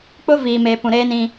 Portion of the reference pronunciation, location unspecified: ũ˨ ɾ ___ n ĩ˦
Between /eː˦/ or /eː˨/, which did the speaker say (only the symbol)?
eː˦